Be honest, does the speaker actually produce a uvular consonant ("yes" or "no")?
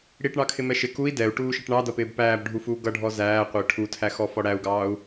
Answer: yes